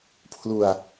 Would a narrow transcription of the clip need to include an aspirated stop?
yes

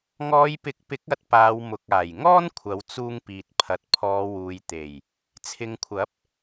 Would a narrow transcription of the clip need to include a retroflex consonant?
no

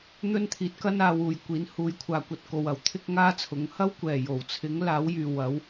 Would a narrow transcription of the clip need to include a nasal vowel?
no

